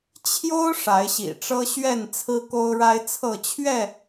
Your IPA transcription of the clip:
t͡ɕʰjo˦ʊ̯ ʂa˨˦ɪ̯ɕḭ˨˩ʈ͡ʂɤ˦ ɕɥɛ˥˨n t͡sʰɹ̩˦ko˦ʊ̯ɻa˦ɪ̯t͡sʰɤ˥˨ t͡ɕʰɥɛ˥˨

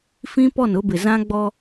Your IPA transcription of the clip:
fĩ˦pɔ˦˨nʊ˦bɪ˨ zã˦ɡ͡bɔ˦

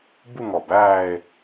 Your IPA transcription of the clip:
bu˥˧ŋɔ˨˩bæː˥˧e̯

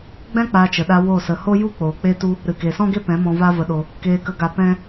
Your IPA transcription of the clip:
ɡ͡bɛ̃˦k͡paː˧t͡ʃə˨ɗa˧ wo˦˨sə˧ ho˦ju˦k͡poː˨ k͡pe˦tu˦ | ɾɨ˨ke˨sɔ̃˦ɡe˦ pɛ̃˨˦mɔ̃˧ va˦və˧ɗo˧ | keː˧kə˧ɡa˧ pɛ̃˦

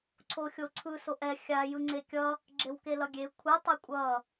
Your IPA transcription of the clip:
ǀʰoxʲoǀʰɯ soʔɛ xʲa jɯŋ͡ǀekʲʌ | ɡ͡ǁewkelʌɡʲe kʷʰɯ tˤɛkʷʼʌ

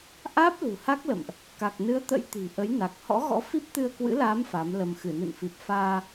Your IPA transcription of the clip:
ʔaː˦˥p̚lṳ˨˩ ha˦˥k̚lə̰˧˨mʔ | ka˨˩k̚nɨ˨˦ə̯t̪ə̰˧˥j t̪i̤˨˩ʔə˨˦jna˨˩k̚ hɔ̰˧˥ɣɔ̰˧˥fi˦˥p̚t̪ɨ˧ə̯ kwɨ̰˧˥laː˨˦m fa˨˦mlə˧m xɨ˧˩nɨ̰˧˨nfi˨˩p̚faː˧

